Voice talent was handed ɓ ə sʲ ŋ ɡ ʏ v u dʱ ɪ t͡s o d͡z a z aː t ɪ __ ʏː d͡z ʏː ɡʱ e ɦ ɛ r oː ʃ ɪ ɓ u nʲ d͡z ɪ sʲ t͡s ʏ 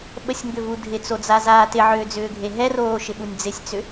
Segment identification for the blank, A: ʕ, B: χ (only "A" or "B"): A